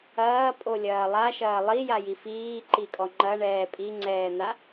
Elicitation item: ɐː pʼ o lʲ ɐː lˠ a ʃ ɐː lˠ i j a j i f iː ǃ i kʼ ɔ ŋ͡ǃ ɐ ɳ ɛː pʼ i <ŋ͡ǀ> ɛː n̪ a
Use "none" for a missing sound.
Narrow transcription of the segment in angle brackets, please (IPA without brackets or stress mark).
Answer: ŋ͡ǀ